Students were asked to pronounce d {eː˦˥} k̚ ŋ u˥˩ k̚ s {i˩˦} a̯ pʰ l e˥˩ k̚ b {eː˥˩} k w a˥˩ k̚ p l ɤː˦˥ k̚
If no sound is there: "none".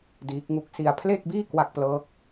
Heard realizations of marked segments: iː˦˥, i˧, iː˥˩

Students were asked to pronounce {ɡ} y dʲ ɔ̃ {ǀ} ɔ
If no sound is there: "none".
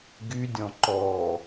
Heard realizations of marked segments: ɡ, ǃ

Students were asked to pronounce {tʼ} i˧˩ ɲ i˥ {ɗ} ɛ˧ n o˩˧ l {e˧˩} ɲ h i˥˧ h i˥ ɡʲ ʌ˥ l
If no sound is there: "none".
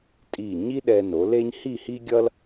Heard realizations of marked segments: tʼ, ɗ, e˥

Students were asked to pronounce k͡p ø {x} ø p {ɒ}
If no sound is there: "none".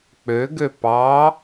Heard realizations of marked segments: ɡ, ɑ

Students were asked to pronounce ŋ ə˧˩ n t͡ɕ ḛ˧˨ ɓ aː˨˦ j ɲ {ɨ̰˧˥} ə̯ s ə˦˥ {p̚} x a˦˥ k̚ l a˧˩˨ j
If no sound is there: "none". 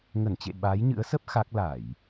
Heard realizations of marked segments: ɨ̰˧˥, p̚

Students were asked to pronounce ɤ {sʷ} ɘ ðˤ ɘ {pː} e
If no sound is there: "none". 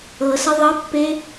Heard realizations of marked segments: s, pː

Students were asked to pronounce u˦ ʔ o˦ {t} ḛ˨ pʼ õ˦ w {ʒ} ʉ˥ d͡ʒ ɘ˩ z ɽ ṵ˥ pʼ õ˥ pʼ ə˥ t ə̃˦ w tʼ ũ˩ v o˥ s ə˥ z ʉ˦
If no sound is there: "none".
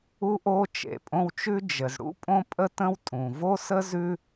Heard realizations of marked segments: t͡ʃ, t͡ʃ

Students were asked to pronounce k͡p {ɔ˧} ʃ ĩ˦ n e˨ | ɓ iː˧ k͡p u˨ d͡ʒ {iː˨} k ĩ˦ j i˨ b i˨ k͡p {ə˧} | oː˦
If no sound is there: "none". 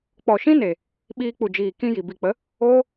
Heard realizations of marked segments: ɔ˨, iː˨, ə˨˦

